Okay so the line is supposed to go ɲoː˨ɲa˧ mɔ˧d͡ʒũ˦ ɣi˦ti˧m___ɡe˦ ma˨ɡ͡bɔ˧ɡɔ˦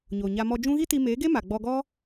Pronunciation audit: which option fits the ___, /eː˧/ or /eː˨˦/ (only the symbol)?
eː˨˦